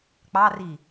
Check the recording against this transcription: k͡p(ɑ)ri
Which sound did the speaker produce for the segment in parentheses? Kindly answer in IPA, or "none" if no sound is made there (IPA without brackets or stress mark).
ɑ